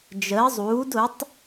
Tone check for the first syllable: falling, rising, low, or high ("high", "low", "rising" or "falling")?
rising